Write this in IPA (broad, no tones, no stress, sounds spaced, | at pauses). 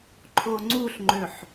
ǃʰ o ŋ͡ǀ u ɬ ŋ͡ǃ ø ħ